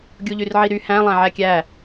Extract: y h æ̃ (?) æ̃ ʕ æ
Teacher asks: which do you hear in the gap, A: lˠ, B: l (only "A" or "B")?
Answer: A